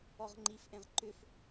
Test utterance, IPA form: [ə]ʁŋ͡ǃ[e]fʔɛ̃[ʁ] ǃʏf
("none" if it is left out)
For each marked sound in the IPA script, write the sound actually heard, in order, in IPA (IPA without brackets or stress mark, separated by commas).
ɔ, i, ʁ